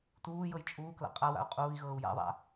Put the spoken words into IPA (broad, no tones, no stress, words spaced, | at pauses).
tuːjɤj t͡ʃʼuːkla̰ qʼawa̰u̯ qʼuːi̯ɣɤːu̯ ja̰ðˤa̰